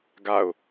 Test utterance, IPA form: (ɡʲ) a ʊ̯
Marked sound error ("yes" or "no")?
yes